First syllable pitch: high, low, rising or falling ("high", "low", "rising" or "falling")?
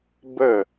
falling